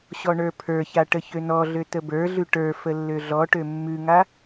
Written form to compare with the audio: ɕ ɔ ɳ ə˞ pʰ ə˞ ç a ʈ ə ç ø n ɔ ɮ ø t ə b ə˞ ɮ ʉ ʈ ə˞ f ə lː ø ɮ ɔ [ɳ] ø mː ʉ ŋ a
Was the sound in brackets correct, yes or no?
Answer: no